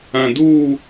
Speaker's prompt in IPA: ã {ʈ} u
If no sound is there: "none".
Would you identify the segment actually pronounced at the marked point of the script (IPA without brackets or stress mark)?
d